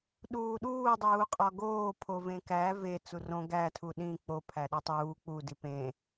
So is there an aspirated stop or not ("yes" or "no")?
yes